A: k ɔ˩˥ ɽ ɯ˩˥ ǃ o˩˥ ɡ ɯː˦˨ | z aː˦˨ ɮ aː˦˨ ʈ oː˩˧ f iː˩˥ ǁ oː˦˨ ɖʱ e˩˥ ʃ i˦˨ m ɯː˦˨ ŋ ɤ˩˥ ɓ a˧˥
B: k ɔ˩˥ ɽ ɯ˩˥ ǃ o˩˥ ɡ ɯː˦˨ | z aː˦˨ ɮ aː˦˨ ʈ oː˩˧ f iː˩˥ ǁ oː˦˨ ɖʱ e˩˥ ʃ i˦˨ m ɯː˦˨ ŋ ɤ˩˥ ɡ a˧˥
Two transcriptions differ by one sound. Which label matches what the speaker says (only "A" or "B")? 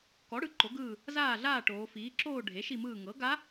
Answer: B